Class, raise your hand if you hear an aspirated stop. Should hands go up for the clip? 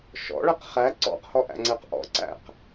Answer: no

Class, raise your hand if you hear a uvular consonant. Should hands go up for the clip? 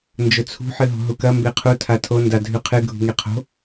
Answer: yes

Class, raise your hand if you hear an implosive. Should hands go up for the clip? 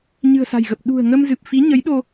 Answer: yes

